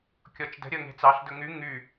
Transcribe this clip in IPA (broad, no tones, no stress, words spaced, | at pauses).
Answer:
kʲɔt͡ʃdə̤ ɾʲəːŋe̤t͡sɑɬ dɵŋy ŋy